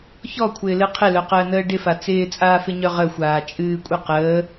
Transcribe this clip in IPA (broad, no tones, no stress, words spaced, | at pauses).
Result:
çɔkʷʰɪːlɨ qʰɪlœqəːnəː ɖɪfa t͡sɪːt͡sʼaːfɪɲœ ʁəxʷaː t͡ʃʼɨːkʷʼə qəː